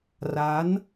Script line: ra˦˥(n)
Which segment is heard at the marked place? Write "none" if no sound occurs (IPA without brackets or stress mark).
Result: n